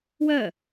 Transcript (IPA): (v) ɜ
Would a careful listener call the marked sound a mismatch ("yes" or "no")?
yes